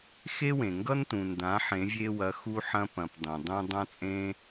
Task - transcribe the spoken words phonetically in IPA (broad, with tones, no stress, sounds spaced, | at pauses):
x e˥ w ẽ˩ ŋ ɡ ʌ˥ n t ũ˩ n d ã˩˧ ħ ẽ˩˧ vʲ e˧ w ɐ˩˧ x u˧ ħ ɐ̃˧ p ɐ̃˩ p dˤ ẽ˩ dˤ ũ˧ dˤ ã˧ t͡sʼ ẽ˧